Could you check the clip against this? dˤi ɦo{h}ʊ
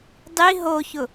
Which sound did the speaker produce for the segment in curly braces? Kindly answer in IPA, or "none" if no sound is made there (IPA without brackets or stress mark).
ç